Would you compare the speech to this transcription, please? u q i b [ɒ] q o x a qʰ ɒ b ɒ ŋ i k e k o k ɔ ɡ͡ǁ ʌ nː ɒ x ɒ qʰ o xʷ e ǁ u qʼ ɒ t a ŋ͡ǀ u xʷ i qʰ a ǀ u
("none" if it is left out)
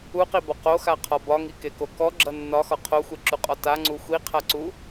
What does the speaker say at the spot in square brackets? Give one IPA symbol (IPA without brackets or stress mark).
ɒ